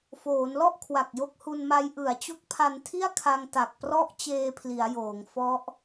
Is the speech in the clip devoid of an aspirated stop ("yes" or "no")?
no